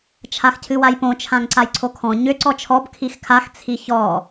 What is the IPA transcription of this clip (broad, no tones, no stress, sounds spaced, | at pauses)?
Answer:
t͡ʃʰ a x cʰ ɨ w a j p õ t͡ʃʰ ã ŋ ǀ a j ǀʰ o kʰ ɔ̃ ɲ ʏ ǀ ɔ t͡ʃʰ ɔ b kʰ i x kʰ a x t͡sʰ i ç ɔ